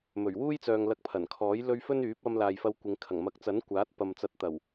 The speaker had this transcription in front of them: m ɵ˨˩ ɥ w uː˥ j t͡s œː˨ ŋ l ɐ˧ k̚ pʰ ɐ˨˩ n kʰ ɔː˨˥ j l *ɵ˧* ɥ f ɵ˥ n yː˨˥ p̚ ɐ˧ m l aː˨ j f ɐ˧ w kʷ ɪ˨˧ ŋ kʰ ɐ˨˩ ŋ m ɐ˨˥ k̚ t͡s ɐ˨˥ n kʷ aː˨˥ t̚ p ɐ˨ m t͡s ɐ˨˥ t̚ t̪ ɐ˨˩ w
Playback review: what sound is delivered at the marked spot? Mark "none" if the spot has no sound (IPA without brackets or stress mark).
ɵ˧